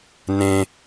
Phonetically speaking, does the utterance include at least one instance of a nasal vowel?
yes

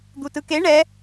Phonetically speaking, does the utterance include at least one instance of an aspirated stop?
no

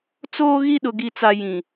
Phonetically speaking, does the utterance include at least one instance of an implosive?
yes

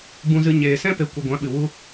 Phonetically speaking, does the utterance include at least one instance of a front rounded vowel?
no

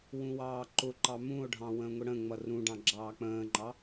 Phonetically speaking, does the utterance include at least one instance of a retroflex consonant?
yes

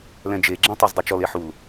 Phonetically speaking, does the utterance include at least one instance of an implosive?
no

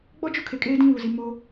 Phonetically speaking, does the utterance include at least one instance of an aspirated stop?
yes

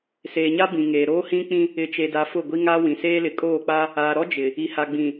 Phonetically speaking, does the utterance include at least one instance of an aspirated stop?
no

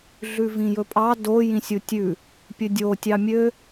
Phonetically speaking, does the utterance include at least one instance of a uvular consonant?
no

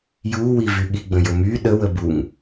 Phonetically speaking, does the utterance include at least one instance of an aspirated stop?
no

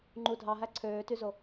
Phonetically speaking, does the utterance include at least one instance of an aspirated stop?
yes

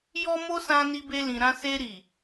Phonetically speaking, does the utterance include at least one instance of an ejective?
no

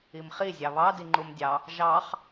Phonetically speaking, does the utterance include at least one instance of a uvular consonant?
yes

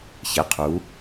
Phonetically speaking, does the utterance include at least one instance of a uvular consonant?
yes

